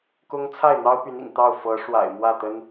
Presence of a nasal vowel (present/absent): absent